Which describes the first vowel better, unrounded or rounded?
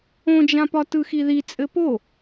rounded